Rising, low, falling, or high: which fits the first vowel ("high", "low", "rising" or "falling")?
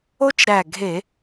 high